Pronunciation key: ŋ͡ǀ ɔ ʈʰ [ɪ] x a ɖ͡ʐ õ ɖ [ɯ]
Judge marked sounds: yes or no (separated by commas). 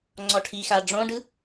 no, yes